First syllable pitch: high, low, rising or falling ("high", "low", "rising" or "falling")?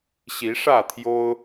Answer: rising